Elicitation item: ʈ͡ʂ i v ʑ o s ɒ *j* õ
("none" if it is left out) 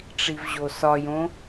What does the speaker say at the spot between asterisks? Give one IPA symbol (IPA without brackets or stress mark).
j